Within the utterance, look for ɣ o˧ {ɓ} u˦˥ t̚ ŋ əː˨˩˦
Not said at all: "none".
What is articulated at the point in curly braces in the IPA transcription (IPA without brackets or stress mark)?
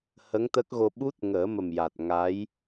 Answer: ɓ